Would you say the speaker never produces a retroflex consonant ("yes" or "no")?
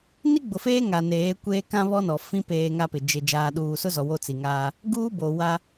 yes